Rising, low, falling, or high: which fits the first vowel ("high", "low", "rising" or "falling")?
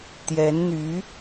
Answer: rising